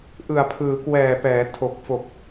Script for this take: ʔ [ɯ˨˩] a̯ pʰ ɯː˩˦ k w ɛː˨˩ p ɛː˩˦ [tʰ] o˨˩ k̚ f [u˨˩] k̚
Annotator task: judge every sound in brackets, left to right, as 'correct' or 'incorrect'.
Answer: correct, correct, incorrect: o˨˩

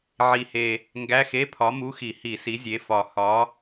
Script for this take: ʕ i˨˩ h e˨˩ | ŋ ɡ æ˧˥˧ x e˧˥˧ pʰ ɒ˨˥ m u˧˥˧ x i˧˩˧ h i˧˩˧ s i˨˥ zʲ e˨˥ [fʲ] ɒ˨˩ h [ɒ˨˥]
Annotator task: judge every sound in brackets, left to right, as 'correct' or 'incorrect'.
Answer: incorrect: f, correct

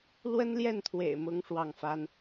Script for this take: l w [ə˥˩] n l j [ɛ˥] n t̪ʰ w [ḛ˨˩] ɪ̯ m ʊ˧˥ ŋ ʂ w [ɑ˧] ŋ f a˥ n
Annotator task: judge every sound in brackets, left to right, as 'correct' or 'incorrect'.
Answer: incorrect: ə˥, incorrect: ɛ˥˩, correct, incorrect: ɑ˥˩

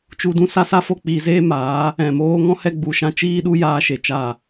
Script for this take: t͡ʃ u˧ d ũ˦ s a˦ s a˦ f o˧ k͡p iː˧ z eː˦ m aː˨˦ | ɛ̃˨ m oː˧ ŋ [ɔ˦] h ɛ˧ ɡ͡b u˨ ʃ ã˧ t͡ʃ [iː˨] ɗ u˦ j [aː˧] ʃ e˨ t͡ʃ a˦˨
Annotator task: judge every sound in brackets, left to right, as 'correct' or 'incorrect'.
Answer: incorrect: ɔ̃˦, incorrect: iː˦, correct

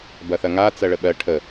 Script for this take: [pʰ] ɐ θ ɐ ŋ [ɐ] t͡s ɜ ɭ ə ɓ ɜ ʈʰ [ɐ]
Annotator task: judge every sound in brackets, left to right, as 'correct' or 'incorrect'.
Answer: incorrect: b, incorrect: a, incorrect: ə

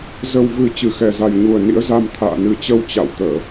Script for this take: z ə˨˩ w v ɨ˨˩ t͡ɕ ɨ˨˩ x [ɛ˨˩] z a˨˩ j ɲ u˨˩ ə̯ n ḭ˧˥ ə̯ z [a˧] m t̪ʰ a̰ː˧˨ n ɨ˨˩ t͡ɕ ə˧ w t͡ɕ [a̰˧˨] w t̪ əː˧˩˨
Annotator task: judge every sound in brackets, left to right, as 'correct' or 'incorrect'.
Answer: correct, correct, correct

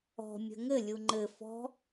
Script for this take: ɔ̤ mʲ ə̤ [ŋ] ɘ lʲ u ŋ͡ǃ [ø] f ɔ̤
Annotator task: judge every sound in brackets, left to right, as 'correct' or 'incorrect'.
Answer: correct, incorrect: ɘ

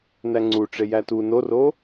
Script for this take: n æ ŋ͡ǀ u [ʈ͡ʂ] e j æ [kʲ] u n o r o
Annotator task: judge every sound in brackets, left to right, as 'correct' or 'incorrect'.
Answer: correct, incorrect: t

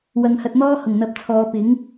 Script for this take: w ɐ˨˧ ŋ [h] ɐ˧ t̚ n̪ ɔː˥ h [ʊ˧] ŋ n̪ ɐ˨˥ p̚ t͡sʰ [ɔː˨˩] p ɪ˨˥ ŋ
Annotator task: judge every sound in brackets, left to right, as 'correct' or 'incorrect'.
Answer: correct, incorrect: ʊ˨˩, incorrect: ɔː˨˧

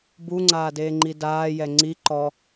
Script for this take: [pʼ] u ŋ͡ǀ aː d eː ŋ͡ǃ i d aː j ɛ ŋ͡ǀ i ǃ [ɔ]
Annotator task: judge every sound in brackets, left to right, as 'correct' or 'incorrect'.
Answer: incorrect: b, correct

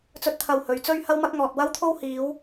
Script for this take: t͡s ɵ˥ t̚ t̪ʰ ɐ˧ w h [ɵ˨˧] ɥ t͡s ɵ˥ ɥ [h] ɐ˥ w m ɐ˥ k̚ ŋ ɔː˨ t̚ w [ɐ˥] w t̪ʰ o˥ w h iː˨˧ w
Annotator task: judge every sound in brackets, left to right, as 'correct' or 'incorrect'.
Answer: correct, correct, correct

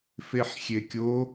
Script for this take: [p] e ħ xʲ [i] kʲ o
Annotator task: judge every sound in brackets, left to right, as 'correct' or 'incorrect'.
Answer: incorrect: f, incorrect: e

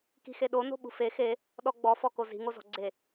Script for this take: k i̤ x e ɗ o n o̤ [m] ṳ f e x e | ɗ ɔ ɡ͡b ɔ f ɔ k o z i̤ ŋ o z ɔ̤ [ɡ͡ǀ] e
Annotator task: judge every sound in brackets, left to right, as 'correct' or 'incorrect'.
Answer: incorrect: ɓ, correct

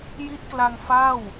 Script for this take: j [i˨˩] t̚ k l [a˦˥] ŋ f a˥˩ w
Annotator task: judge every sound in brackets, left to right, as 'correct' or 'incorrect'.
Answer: incorrect: i˦˥, incorrect: a˧

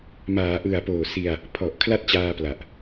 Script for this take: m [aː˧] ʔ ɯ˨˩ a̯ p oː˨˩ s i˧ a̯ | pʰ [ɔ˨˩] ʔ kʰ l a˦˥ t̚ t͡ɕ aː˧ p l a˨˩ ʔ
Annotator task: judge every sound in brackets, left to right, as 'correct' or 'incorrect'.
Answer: incorrect: aː˩˦, correct

